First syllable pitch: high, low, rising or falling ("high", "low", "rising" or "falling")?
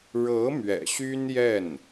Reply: rising